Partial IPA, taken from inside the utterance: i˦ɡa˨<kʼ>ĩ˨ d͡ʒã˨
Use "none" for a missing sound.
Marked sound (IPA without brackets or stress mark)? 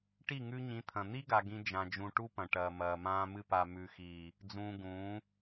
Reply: ɡ